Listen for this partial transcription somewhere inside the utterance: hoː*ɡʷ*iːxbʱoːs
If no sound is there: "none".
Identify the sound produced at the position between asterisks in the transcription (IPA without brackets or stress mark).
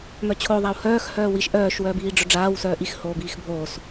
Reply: b